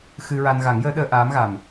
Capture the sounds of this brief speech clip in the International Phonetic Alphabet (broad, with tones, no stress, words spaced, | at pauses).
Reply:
xɨ˧ɹa˧n ɣa˨˩˦ŋjəː˧˥ɗəː˧ ʔaː˧˥mɣa˨˩m